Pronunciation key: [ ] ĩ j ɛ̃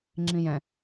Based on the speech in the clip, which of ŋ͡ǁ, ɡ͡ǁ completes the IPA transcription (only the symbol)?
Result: ŋ͡ǁ